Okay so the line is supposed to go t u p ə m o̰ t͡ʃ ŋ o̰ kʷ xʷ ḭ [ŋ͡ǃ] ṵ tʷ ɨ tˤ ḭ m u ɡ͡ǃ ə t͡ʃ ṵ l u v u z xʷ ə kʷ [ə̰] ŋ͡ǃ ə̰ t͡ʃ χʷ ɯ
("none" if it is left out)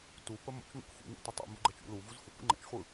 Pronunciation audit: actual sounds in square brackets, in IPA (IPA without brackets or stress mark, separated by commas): ŋ, ə̰